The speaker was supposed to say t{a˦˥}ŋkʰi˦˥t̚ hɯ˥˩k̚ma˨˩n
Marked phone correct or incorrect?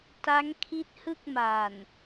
correct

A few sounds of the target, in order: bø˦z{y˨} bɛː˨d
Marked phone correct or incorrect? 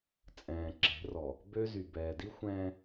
correct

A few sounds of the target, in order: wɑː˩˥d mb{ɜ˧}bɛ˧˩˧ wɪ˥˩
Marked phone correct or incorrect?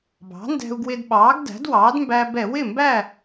incorrect: æ˧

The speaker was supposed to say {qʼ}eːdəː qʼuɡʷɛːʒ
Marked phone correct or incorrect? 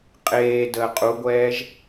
correct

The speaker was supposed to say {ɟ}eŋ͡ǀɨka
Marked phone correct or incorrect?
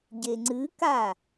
correct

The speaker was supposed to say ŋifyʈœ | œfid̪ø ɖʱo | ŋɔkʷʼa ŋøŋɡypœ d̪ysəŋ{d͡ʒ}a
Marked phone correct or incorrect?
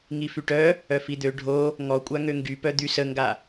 incorrect: ɡ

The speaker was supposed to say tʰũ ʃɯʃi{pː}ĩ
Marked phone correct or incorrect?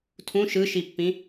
correct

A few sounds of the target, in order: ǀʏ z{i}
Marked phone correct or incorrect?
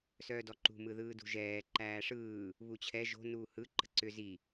correct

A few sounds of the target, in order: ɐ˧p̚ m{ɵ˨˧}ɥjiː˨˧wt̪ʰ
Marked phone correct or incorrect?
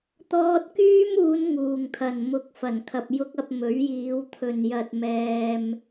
incorrect: ɵ˨˥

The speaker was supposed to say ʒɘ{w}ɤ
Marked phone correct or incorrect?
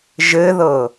incorrect: ð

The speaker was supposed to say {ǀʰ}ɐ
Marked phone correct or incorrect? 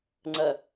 incorrect: ŋ͡ǀ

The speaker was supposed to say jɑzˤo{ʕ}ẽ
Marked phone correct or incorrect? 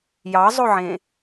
correct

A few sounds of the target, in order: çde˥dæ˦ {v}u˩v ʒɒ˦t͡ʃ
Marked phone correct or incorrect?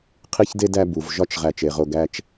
incorrect: b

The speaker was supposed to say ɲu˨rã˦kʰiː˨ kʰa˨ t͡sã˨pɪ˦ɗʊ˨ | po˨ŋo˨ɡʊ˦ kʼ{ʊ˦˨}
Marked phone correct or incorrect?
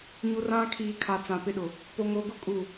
incorrect: u˦˨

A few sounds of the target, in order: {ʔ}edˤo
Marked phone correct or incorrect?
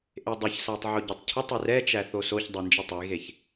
correct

